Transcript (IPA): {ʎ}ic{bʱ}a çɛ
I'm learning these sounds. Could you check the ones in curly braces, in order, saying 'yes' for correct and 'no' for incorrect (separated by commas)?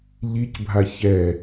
yes, yes